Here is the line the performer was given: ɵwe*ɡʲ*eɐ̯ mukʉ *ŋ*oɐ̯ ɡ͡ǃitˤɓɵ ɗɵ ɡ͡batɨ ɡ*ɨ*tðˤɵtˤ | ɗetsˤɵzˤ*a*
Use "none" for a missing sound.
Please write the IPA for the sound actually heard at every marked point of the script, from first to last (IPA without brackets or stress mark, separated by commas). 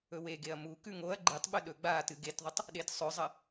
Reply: ɡ, ŋ, e, ɐ